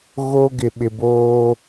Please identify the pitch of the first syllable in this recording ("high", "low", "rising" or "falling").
high